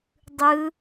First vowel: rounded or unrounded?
unrounded